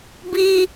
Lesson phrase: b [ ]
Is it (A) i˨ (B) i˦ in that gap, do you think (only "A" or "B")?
B